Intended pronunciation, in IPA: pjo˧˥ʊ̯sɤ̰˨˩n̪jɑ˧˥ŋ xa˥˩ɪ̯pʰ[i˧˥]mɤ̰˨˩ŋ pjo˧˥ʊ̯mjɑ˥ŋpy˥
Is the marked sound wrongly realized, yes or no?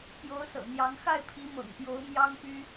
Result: no